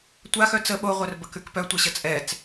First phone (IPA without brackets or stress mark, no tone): tʷ